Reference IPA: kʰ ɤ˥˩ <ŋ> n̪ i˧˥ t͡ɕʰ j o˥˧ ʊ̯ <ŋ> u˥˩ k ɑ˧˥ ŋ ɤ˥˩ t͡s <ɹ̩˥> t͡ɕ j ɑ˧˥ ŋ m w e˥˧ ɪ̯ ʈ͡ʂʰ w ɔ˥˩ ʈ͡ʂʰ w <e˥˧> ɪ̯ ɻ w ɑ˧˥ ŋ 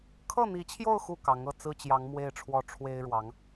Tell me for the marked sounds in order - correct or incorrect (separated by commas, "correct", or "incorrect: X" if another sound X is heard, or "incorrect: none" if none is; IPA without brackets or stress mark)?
incorrect: none, incorrect: x, correct, incorrect: e˥